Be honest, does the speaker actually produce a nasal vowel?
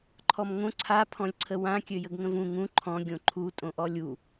yes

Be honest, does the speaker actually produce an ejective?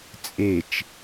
yes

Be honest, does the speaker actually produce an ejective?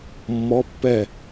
no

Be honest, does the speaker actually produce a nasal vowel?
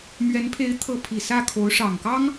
no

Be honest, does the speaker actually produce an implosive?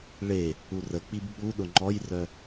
yes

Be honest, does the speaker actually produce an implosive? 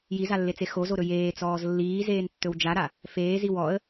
no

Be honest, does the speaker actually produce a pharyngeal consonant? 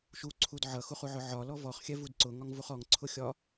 yes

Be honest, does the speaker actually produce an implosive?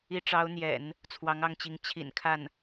no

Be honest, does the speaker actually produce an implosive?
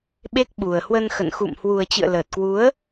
yes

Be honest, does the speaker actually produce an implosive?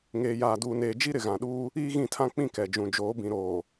yes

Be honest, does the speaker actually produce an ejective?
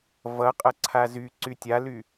yes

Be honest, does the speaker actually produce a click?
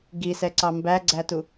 yes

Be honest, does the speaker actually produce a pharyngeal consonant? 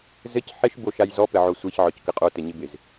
yes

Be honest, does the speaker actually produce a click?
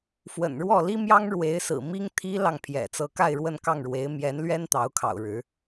no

